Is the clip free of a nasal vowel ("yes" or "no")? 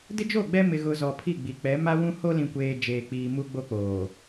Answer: no